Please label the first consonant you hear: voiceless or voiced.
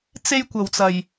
voiceless